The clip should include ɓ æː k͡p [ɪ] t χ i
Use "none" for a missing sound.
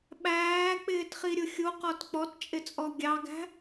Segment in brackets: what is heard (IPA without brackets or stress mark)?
ɪː